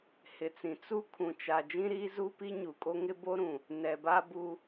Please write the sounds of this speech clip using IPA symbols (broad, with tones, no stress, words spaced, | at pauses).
hɪ˨t͡sĩ˨ t͡su˦ kʰũ˨t͡ʃa˨ d͡ʒĩ˦ɾiː˦zu˦ pi˦ɲu˨kʼo˦ŋɪ˦ bo˦ɾũ˨ | nɛ˨ba˦bu˦